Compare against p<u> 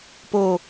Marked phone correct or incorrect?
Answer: incorrect